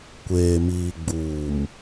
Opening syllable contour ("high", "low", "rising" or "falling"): low